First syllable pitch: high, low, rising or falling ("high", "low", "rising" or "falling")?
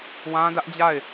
high